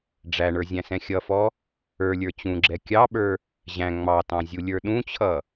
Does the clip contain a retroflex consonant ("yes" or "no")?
yes